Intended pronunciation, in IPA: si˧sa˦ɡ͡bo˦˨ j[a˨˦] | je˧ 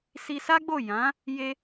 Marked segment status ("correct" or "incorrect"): incorrect